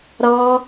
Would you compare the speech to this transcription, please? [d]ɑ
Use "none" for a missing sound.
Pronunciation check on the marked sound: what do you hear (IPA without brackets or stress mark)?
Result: ɾ